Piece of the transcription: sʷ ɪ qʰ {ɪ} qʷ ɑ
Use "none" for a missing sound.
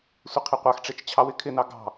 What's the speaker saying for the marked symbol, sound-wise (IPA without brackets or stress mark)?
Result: ɪ